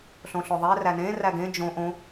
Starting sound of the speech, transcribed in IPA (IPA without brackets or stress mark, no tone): ɬ